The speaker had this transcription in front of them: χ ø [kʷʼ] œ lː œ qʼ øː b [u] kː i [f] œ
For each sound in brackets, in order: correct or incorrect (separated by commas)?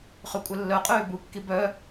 correct, correct, incorrect